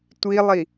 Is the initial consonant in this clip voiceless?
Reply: yes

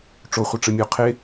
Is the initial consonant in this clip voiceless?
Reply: yes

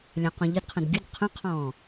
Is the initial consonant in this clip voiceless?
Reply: no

